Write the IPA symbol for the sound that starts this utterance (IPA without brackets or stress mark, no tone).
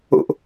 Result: o̰